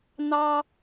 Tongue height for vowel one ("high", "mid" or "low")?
low